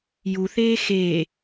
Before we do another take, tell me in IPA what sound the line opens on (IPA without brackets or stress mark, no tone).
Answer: j